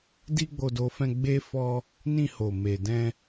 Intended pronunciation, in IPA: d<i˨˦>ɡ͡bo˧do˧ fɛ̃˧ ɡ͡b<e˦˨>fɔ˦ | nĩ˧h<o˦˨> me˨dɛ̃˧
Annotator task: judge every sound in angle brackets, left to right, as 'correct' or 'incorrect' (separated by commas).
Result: incorrect, incorrect, incorrect